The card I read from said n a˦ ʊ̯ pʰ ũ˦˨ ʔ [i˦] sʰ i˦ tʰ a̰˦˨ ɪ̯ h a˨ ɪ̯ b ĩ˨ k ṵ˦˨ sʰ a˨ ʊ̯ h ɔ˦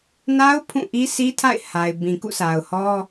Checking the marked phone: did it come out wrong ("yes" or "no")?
no